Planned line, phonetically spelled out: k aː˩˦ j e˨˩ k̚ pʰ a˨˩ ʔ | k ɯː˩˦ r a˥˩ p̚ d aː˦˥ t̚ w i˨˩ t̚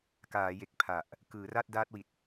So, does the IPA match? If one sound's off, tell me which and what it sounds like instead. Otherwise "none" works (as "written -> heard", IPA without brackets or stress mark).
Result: p̚ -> t̚